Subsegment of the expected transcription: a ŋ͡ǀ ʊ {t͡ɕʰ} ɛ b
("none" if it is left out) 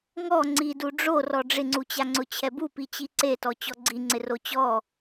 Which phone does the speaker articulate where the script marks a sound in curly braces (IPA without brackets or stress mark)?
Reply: t͡ɕʰ